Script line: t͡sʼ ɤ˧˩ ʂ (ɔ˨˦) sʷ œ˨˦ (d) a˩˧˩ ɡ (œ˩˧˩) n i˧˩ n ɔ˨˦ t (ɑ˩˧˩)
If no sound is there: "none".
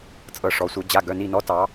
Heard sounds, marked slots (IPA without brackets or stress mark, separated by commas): ɔ˨˦, d͡ʑ, œ˩˧˩, ɑ˨˦